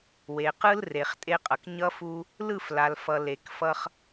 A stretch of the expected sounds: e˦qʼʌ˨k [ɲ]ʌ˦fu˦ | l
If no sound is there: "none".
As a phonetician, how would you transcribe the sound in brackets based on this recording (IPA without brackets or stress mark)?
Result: ɲ